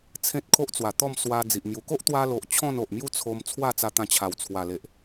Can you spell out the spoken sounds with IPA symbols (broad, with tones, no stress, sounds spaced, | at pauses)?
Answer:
t͡sʰ ẽ˦ t̚ kʰ o˦ ʔ t͡s w a˨˩ t̪ ɔ˥˧ m s w a˧ d͡z i˨ ʔ m j u˧ k o˦ ʔ t̪ w a˧ l o˨ ʔ t͡ɕʰ ɔ̃˥˧ n o˨ ʔ m j u˥˧ t͡sʰ o˧ m t͡sʰ w a˥˧ t͡s a˧ t̪ ã˧ t͡ɕʰ a˨˩ w t͡sʰ w a˨˩ l e˨ ʔ